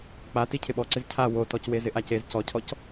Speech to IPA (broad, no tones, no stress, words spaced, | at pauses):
k͡pa ticʰɪɓɔǀɪz cʰa wotɔcwe zɪʔacez cɔcʰɔc